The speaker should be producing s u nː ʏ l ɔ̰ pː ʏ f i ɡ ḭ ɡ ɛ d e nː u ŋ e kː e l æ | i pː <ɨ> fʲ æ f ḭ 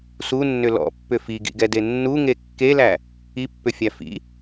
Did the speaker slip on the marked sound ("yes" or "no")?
yes